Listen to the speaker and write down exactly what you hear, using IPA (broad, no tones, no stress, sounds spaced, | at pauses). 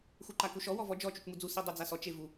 x u ǃ a k u ʃ ɔ w ɔ v ɔ d͡ʒ ɔ t͡ʃ u t͡ʃ m u d͡z u s i dˤ u d͡z a s ɔ t͡ʃ e v u